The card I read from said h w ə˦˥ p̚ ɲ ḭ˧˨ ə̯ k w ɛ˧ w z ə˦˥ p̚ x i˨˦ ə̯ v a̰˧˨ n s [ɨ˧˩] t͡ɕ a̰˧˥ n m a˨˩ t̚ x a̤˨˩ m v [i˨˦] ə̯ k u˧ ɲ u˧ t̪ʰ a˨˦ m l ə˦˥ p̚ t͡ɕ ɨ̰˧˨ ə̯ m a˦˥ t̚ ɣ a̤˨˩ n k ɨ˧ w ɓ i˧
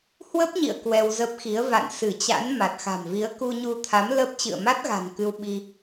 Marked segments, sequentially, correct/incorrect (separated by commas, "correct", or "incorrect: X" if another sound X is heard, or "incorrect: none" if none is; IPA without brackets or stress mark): correct, correct